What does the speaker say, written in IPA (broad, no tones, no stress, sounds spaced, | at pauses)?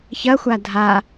ç ɐ xʷ a dʱ a